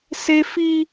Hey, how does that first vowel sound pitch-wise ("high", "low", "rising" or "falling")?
high